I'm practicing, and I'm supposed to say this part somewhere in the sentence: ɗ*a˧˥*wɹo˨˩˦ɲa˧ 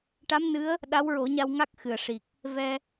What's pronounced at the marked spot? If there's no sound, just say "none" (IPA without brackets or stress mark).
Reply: a˧˥